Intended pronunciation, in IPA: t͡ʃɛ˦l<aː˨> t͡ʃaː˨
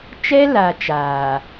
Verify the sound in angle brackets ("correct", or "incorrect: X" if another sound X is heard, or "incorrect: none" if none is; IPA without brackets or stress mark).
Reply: incorrect: a˨